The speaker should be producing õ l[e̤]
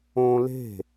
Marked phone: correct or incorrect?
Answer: correct